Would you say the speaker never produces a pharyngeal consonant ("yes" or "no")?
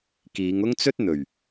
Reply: yes